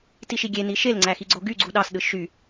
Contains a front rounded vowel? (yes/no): yes